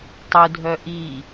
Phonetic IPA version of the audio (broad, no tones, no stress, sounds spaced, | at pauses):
tˤ u dʱ œ ʔ i